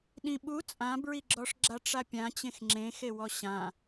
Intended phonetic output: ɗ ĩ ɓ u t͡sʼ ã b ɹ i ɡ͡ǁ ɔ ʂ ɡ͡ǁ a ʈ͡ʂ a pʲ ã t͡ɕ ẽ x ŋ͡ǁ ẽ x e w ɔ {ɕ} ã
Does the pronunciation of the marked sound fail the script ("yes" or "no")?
no